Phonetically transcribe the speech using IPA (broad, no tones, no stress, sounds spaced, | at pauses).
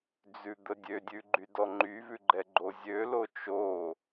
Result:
d͡z ʉ d̪ ə dʲ ø dʲ ʉ ɡ͡ǃ y d ɔ ŋ͡ǃ y v ʉ ɡ͡ǃ ɛ ɡ͡ǃ o zʲ ø l o t͡ʃ o